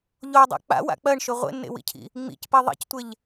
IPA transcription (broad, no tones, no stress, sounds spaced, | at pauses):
ʎ o dˤ a̰ k͡p a̰ w a̰ k͡p ɜ ɳ ʃ ɵ ʁʷ ḛ nː ḛ w ḭ cʰ ḭ | ŋ͡m ḭ c p i ðˤ ḛ c tʷ e ʎ